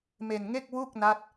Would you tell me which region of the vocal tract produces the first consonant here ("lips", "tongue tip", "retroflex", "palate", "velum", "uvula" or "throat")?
lips